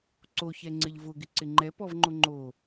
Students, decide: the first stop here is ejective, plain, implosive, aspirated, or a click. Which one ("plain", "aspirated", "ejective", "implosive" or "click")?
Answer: click